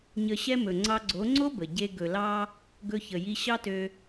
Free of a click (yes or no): no